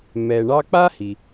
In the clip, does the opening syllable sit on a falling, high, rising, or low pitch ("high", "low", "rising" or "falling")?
low